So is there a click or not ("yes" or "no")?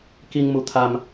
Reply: no